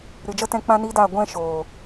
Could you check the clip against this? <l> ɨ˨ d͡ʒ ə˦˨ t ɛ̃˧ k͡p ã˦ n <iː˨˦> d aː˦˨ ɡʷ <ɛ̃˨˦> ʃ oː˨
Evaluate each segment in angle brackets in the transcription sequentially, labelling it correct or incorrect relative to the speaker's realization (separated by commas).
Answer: incorrect, incorrect, incorrect